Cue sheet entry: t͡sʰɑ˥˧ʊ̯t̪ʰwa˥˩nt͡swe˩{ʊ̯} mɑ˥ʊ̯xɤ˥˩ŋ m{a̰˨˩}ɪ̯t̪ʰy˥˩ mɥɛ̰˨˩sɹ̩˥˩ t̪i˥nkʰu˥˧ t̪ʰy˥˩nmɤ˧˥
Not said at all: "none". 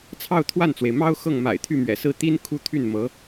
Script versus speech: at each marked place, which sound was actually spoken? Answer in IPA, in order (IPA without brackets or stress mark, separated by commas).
ɪ̯, a̰˨˩